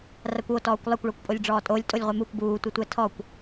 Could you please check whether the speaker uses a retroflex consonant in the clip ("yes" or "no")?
yes